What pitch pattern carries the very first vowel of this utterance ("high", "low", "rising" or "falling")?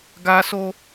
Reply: high